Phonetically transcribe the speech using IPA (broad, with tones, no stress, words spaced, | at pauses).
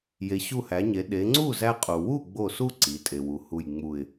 je˩˧ɕu˧˩hæ˩˧ɲe˩˧ ɗe˩˧ŋ͡ǀu˥˩ zæ˦qʼu˩ wu˥˩ɡ͡bo˧˩su˦ ǀi˩˧tʼe˩wu˩ hu˧˩jŋ͡mu˧˩ɪ̯